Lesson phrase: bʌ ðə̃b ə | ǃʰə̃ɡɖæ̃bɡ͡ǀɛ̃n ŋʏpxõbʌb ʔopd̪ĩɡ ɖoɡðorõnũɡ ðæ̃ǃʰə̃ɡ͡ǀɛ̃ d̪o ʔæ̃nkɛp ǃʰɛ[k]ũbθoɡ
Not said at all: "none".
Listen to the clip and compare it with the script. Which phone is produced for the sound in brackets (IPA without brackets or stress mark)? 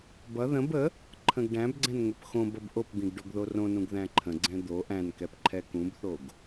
k